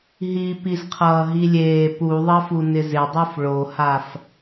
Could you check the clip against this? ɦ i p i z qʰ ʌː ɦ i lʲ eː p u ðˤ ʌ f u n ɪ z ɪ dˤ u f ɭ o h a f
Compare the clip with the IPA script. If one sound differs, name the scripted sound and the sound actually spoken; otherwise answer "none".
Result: none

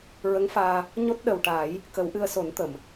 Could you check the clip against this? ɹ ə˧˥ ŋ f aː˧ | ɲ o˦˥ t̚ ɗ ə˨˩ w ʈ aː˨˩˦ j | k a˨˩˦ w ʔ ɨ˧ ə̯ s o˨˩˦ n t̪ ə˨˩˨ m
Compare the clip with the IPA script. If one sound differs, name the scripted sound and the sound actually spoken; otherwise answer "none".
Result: a˨˩˦ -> ə˨˩˦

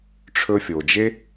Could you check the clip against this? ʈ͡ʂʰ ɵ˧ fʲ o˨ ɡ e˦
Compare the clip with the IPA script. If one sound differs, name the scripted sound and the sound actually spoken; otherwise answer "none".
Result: ɡ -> d͡ʒ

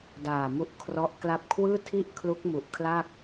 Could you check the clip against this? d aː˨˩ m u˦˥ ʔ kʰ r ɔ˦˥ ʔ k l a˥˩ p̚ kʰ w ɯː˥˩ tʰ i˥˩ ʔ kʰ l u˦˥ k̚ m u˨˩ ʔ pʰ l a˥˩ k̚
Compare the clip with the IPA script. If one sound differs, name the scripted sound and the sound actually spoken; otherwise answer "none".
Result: pʰ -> kʰ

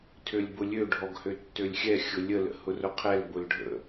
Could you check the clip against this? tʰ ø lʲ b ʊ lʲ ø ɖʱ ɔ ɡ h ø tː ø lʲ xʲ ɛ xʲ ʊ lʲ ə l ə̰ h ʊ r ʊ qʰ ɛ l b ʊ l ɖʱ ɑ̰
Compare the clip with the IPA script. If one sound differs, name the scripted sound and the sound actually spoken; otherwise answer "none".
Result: ɑ̰ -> ə̰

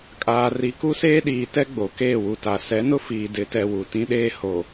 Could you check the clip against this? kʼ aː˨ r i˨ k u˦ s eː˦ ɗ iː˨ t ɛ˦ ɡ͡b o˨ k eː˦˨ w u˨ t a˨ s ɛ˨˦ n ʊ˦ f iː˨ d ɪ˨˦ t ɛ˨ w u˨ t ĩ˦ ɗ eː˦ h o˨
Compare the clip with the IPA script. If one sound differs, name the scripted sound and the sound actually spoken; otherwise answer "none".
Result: none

